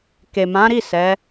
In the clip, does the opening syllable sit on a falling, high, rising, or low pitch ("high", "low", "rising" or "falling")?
low